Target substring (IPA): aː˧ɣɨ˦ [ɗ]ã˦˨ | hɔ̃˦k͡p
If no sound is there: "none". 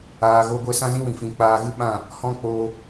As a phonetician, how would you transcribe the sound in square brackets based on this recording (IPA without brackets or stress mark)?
ɓ